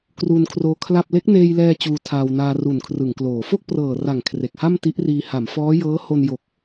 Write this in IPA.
k r uː˧ n kʰ r oː˧ kʰ l a˥˩ p̚ l e˦˥ k̚ n eː˧ j l ɛː˧ t͡ɕ uː˧ tʰ aː˧ w n aː˧ r u˨˩ n kʰ r ɯ˩˦ ŋ k l oː˩˦ f o˥˩ k̚ p r ɤː˨˩ r a˨˩ ŋ kʰ r e˨˩ k̚ h a˥˩ m t i˦˥ ʔ r iː˧ h a˩˦ m f ɔː˦˥ j ɤː˦˥ h o˧ n j o˨˩ k̚

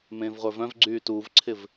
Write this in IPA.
m ẽː v ʁʷ ə˞ v œ̃ v ɡ͡ǀ yː t uː v ǀʰ ɪ v

